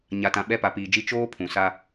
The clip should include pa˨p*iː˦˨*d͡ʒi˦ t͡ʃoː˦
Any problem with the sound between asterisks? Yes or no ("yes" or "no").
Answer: yes